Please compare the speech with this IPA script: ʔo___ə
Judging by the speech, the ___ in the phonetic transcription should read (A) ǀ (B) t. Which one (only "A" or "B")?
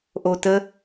B